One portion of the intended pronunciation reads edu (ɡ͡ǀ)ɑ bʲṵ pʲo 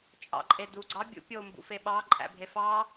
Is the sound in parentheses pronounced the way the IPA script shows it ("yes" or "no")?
yes